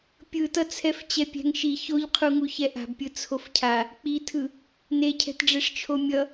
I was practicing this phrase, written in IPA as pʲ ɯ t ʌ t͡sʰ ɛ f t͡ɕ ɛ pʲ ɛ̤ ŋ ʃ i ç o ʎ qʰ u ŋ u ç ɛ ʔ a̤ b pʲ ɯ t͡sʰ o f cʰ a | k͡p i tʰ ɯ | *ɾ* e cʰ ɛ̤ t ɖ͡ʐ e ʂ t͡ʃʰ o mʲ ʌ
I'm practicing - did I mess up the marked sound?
yes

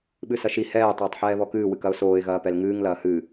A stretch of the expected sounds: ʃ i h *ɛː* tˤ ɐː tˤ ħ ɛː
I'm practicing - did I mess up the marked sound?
no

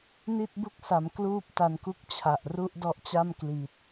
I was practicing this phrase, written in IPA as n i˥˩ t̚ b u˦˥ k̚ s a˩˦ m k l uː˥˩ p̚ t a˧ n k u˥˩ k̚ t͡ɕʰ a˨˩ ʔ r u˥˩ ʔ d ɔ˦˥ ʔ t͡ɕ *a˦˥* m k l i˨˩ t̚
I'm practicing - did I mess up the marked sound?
yes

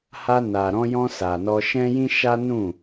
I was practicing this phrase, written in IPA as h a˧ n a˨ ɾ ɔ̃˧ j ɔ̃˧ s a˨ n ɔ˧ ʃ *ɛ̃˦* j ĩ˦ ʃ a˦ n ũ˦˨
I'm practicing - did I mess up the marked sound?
no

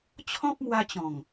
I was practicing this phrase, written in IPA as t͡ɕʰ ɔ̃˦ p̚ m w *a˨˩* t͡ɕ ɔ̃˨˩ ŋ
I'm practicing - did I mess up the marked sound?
yes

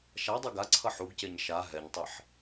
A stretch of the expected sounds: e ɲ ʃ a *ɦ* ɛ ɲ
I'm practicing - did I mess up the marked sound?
no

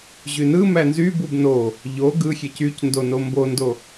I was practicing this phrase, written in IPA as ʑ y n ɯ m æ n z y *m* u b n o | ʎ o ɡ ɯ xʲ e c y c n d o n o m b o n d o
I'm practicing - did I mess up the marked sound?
yes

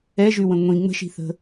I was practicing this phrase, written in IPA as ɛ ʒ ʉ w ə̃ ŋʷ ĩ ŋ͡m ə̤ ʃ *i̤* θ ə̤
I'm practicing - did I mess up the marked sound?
no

